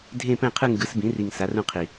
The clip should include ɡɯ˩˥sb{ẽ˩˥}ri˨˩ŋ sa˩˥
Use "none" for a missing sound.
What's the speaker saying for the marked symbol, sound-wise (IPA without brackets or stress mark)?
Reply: ĩ˩˥